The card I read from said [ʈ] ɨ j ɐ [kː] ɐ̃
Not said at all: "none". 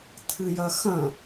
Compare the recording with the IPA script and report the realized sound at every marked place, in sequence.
tʰ, x

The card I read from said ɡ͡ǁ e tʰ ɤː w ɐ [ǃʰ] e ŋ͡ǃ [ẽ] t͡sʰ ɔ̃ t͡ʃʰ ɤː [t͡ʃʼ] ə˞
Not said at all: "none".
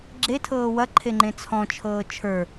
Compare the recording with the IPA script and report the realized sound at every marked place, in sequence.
ǃʰ, ẽ, t͡ʃʰ

